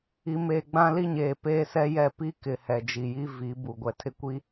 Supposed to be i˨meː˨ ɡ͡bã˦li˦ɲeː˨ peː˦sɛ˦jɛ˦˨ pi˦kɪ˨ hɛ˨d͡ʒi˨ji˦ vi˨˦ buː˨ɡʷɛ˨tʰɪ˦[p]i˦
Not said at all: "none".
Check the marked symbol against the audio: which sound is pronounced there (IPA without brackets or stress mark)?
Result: kʷ